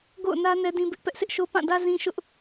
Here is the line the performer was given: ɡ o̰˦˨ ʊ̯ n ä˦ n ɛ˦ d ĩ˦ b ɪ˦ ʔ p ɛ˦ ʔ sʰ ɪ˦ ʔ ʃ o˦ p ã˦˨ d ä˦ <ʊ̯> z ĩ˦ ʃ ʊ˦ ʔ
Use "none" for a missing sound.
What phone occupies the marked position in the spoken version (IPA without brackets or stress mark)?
none